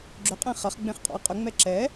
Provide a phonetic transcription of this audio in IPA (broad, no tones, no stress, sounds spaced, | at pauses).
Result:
ɡ͡ǁ ʏ qʼ ẽ χ ɐ χ ɡ͡b ẽ χ qʼ ɔ̰ ɪ̯ qʼ ʏ ŋ͡m ɛ ǁ ɛ